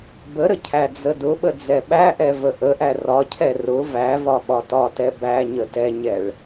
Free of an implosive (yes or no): no